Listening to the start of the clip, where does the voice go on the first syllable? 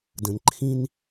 low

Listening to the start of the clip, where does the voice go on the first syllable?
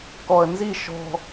low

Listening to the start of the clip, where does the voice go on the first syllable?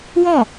falling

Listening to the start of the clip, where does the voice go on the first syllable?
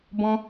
high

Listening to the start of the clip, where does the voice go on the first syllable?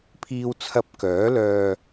low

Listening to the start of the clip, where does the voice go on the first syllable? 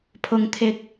low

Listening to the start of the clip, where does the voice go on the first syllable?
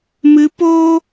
rising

